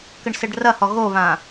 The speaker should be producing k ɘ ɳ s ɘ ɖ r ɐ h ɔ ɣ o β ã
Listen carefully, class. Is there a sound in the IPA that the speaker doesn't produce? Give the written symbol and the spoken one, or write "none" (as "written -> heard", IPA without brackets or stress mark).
none